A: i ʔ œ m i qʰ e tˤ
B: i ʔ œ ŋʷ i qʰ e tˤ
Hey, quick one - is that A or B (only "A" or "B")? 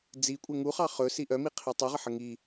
A